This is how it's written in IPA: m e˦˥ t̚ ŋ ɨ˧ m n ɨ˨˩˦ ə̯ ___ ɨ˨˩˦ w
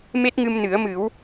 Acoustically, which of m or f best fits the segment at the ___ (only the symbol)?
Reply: m